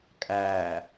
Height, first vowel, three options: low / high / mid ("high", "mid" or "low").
low